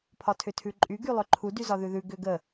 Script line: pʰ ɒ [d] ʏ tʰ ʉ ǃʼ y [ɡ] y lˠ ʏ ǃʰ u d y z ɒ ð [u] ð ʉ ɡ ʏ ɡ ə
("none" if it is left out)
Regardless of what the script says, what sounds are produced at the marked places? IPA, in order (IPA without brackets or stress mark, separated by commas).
tʰ, ɡ, ʉ